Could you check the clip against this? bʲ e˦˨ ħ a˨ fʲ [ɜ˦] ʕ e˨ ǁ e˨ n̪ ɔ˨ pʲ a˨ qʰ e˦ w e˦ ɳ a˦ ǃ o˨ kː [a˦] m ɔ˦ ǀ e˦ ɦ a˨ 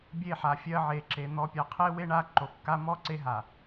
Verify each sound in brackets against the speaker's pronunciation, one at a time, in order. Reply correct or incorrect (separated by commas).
correct, correct